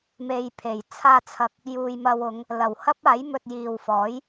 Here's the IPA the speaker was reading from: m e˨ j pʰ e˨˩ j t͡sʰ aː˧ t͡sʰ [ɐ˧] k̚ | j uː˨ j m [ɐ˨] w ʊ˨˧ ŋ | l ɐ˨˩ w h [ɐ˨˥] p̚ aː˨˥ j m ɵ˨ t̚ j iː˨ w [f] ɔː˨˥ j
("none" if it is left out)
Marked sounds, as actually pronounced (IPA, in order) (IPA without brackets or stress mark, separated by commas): ɐ˨, ɐ˧, ɐ˥, f